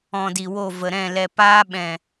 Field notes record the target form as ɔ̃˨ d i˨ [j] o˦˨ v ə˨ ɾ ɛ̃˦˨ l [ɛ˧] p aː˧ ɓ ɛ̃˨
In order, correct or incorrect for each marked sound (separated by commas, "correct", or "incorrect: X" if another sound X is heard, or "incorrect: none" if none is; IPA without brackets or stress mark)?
incorrect: w, correct